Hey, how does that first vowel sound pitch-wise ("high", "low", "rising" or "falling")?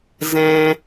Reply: high